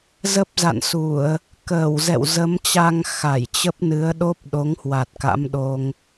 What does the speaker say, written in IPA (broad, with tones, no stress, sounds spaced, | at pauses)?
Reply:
z ə˦˥ p̚ z a̰˧˨ n s u˧˩˨ ə̯ | k əː˧˩ w z ɛ̰˧˨ w z ə˨˦ m t͡ɕ a˧ ŋ x a˧˩ j t͡ɕ ə˦˥ p̚ n ɨ˨˦ ə̯ ɗ o˦˥ p̚ ɗ o˨˦ ŋ h w a˨˩ t̚ k a̰˧˥ m ɗ o˧ ŋ